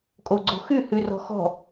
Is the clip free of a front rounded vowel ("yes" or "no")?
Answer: no